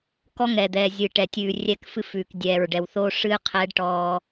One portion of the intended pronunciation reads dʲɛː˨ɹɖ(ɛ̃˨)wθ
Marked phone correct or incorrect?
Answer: incorrect: ɛ˨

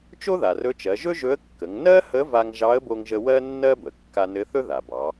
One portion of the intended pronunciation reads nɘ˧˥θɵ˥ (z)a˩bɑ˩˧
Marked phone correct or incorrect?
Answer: incorrect: ð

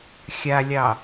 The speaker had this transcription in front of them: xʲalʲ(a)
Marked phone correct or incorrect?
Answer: incorrect: ɑ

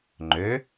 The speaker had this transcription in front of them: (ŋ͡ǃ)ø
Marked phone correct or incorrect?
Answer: correct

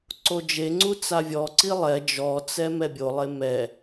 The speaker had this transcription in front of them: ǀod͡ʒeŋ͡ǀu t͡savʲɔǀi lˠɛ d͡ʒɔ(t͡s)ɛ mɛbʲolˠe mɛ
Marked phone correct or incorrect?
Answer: correct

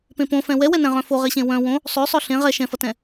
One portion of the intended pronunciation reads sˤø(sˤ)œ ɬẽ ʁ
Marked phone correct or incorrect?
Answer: correct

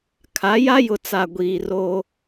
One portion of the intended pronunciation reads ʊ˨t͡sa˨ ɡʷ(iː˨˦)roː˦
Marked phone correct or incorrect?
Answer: incorrect: iː˨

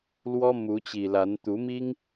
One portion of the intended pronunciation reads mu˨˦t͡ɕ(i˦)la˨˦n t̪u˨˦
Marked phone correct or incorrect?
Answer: incorrect: i˨˩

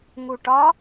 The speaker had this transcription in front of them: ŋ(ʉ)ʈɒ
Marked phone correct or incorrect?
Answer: incorrect: u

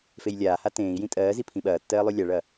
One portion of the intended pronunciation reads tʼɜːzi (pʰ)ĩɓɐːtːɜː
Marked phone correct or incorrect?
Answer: correct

